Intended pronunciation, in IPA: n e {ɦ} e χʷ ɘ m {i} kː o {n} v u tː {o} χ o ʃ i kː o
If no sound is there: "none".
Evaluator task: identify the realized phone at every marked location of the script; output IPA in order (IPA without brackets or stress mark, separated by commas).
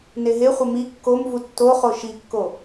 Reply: ɦ, i, m, o